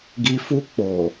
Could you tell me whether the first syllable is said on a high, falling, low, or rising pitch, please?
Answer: low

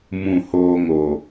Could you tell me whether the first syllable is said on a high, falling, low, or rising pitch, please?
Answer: falling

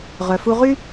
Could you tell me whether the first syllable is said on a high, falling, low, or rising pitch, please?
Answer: low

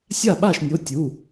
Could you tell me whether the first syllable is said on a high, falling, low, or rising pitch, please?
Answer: falling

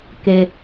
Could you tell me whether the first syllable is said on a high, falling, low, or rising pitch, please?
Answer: low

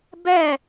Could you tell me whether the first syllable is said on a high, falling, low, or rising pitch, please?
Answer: falling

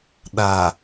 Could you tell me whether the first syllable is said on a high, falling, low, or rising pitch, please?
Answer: low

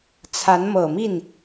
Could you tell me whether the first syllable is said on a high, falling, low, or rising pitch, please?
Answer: rising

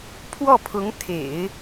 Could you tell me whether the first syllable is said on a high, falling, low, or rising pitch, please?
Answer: falling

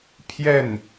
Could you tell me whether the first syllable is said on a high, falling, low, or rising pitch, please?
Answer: falling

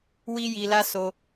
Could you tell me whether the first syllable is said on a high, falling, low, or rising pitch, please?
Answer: high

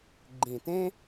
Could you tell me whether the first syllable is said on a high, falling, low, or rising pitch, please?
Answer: low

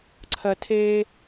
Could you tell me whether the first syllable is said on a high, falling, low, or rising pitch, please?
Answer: high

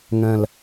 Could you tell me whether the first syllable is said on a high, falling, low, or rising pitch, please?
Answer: low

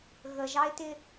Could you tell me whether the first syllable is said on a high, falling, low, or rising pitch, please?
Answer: low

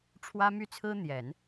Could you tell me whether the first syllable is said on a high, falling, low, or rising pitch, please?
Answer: high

